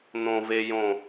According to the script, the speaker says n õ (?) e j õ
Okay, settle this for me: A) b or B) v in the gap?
B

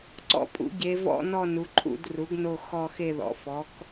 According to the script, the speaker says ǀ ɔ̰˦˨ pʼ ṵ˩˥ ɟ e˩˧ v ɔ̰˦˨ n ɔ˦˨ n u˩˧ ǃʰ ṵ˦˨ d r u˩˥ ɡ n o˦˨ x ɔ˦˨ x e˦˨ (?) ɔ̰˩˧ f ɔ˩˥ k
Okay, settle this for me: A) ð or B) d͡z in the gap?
A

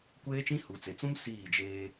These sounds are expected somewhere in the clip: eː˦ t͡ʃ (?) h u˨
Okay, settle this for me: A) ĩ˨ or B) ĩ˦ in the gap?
B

